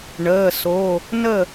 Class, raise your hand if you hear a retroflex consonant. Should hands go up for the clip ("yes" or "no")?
yes